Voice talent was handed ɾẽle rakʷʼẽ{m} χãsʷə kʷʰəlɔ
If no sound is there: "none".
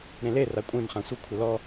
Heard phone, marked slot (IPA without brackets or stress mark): m